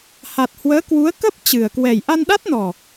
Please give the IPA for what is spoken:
ha˨˩t̚hwəː˨˦ kwu˨˦ə̯kə˦˥p̚ t͡ɕɨ˨˩ə̯ kwɛ˨˩jʔa˧nɗa˦˥t̚nɔ˨˩

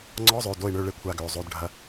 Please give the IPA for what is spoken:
ŋ͡ǀɔ˧˥˧zˤø˩˧˩ do˥˨i̯ɳø˥˨ɭe˥˨ kʷʰa˥˨ɡøː˩˧˩zˤo˧˥˧dɖʱɐ˧˥˧

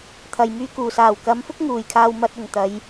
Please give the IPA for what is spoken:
t̪ʰɐ˨jmyː˧ kuː˨˩saː˨˩wkɐ˨˧mfʊ˥k̚ ŋuː˨˩jkʰaː˧wmɐ˧t̚ ʊ˨ŋt̪ɐ˨˧j

